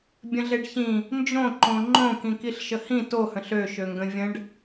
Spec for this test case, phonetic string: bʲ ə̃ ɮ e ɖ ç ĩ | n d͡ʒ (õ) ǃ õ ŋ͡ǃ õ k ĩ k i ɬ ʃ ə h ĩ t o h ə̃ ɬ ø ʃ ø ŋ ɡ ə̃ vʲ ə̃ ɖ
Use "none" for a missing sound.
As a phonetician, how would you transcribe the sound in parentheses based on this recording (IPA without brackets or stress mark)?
õ